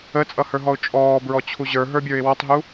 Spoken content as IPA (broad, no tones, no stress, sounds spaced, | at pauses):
ə t͡sʼ ʌ h ə˞ ɦ ɔ ʊ̯ t͡ʃʼ ɔː b ɹ ɔ t͡ɕʰ u ʑ ə˞ ɦ ə˞ bʲ ə˞ ɪ̯ w ɔ tˤ ɦ u